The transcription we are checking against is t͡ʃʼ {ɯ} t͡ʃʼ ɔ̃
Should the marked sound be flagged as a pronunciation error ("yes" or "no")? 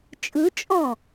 no